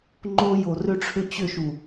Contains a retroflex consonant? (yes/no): yes